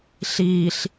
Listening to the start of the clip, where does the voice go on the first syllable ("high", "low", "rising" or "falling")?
low